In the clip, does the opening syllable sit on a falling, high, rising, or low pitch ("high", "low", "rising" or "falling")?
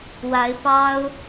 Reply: rising